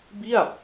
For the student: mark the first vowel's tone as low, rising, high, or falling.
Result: falling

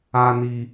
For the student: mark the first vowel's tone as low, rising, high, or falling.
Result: low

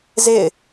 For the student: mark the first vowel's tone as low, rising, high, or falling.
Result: falling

